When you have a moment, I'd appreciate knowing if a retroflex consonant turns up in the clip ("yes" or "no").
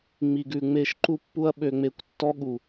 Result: no